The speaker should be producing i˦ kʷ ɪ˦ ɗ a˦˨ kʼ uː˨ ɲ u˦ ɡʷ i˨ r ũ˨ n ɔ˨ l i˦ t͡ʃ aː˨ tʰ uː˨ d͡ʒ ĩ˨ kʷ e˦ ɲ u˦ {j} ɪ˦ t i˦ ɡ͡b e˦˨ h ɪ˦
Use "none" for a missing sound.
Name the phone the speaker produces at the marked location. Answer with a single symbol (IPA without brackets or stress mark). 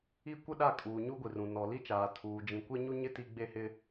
ɲ